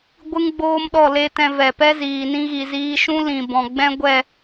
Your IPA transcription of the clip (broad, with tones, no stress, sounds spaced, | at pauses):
ɡʷ ɨ˦ ŋ ɡ͡b oː˦ m ɗ ɔ˦˨ l e˧ t ɛ̃˧ v ɛ˨ p ɛ˦ z iː˨ n ĩ˧ ɣ i˨ z iː˧ ʃ ũ˦ l ĩ˨ b ɔ̃˨ ɡ͡b ɛ̃˦ ɡʷ ɛ˦˨